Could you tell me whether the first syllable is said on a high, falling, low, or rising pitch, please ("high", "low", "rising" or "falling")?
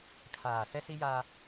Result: low